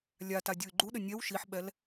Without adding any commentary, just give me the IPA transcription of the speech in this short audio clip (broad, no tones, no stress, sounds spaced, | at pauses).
lʲ a t a dʲ u y̯ ɡ͡ǃ u ɗ ɘ nʲ ɛ w ʃ i ħ ɓ ɛ l